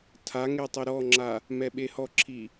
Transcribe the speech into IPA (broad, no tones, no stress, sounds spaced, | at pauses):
tʰ a ŋ e tˤ ɪ ɾ ɔ ŋ͡ǁ a | m ɛ ɓ e h ɔ ǁʰ i